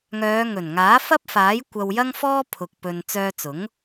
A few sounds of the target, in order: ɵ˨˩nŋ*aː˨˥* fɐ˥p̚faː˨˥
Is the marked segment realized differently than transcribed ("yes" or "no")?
no